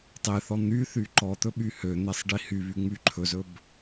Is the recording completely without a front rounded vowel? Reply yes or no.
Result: no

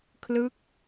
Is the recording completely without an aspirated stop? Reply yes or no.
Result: no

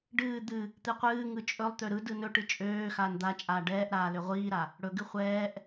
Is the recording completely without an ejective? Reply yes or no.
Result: no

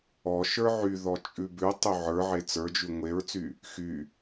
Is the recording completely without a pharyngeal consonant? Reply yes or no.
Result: no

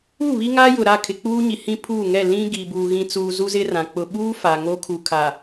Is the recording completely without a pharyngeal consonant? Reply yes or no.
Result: yes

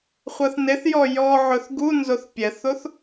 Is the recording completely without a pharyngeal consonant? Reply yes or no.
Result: no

